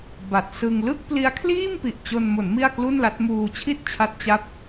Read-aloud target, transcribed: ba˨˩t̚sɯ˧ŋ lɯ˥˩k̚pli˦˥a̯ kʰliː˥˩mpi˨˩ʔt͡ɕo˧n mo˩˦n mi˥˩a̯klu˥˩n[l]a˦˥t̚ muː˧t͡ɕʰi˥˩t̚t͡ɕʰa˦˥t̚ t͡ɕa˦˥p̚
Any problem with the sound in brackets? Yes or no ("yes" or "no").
no